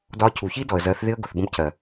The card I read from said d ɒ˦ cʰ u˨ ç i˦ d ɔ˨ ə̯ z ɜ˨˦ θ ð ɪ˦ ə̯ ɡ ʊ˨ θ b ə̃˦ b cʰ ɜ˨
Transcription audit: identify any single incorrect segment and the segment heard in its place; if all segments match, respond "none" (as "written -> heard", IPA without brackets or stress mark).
none